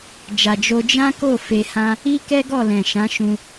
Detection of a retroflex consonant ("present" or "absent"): absent